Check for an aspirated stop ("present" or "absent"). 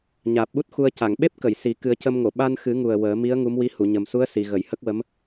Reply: absent